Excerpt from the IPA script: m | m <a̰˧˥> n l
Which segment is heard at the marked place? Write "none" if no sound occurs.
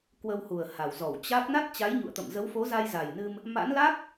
a̰˧˥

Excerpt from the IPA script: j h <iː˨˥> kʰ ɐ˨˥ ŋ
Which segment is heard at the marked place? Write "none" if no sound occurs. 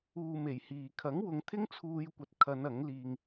iː˨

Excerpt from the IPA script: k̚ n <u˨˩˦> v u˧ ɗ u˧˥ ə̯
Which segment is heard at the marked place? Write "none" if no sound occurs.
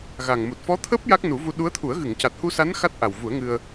u˨˩˦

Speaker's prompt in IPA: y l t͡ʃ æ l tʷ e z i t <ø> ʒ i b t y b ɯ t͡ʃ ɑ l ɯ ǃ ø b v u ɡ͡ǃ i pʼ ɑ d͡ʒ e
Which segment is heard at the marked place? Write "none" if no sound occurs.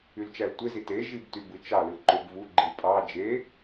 e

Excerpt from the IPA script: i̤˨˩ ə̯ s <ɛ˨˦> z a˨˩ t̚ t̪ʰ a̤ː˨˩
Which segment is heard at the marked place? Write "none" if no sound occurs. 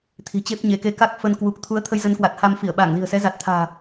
ɛ˨˦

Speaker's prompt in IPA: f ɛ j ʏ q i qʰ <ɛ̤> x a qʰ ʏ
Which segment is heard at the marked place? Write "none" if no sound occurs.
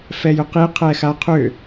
ɛ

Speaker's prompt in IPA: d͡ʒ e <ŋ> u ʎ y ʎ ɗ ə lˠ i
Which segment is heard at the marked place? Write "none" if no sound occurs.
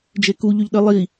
k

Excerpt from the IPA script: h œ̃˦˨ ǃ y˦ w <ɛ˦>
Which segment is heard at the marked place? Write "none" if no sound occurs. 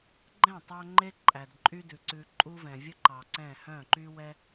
ɛ˦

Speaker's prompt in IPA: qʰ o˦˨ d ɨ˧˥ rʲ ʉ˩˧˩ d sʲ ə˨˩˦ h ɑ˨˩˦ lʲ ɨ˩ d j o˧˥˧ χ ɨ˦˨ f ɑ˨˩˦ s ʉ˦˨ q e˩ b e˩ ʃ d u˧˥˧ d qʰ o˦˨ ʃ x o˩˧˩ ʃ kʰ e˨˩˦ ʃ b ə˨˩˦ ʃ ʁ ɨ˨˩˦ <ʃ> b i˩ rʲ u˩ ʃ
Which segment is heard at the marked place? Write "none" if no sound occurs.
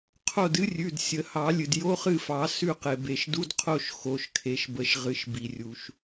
ʃ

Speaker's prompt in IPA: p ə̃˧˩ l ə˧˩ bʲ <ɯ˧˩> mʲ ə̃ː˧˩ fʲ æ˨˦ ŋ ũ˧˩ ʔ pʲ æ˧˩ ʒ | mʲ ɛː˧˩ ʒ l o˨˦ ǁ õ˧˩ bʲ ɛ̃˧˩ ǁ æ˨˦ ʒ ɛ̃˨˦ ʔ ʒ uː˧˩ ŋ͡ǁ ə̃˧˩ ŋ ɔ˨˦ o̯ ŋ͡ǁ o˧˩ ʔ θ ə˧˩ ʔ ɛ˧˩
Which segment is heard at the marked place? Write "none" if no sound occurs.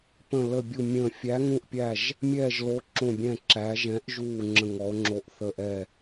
u˧˩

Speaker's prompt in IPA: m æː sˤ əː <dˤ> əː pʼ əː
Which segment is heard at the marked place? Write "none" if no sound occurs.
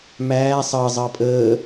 zˤ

